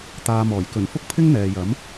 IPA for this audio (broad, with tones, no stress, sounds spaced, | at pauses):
t̪ aː˨ m ɔː˨˩ j k ɵ˨˩ n f ʊ˥ k̚ pʰ ɪ˥ ŋ n̪ ɛː˨ j ɐ˨˥ m